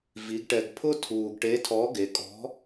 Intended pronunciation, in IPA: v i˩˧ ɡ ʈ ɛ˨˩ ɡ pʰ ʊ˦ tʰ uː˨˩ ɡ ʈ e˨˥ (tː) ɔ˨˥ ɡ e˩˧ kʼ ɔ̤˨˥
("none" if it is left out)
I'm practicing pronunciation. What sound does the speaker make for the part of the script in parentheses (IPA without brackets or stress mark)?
tʰ